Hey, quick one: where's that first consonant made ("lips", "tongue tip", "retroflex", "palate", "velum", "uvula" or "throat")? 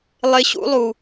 tongue tip